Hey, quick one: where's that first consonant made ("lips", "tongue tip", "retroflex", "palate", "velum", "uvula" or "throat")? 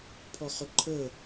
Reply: lips